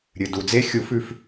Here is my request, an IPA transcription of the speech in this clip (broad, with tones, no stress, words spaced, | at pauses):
ɾʲɨ˨ du˨d͡ze˦˥ xʲu˨˩˦fʉ˨f